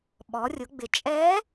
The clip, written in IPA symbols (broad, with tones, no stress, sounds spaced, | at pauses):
ɓ ɔ˩˧ rʲ ʊ˩˧ ɡ͡b ɪ˩˧ t͡ʃʼ ɛː˧˥